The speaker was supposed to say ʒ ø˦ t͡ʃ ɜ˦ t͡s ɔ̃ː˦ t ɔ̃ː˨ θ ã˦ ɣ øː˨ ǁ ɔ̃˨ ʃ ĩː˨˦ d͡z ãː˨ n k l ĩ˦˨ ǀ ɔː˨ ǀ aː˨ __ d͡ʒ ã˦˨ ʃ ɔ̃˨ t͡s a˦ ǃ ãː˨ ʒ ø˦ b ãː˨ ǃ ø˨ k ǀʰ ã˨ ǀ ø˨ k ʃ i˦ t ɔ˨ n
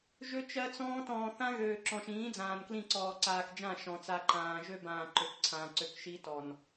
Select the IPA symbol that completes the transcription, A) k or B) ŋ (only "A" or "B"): A